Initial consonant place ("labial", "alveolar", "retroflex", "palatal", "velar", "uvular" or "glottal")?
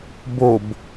labial